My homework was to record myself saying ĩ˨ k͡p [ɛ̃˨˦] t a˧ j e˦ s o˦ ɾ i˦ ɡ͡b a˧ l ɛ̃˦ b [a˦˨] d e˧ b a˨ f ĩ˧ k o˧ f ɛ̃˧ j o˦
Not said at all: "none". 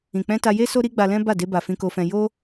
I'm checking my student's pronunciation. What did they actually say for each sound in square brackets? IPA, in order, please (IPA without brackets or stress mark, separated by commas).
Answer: ɛ̃˧, a˦˨